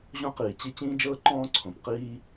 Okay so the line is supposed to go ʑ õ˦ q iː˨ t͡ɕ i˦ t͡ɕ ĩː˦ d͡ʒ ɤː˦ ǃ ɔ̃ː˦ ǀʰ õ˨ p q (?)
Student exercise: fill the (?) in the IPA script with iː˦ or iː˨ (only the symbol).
iː˦